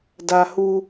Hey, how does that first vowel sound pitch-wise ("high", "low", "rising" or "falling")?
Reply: high